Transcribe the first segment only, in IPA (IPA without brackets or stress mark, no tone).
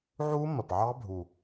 ʕ